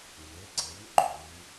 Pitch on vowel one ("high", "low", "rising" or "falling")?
rising